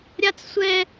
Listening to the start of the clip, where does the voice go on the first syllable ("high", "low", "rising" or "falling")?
high